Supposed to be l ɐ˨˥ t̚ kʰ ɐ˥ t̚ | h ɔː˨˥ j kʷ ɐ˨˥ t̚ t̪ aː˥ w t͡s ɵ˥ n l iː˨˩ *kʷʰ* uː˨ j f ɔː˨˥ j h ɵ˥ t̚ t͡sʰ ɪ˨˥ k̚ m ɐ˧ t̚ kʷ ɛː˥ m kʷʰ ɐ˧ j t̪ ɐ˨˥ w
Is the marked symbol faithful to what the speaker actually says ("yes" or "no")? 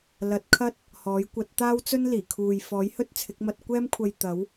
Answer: no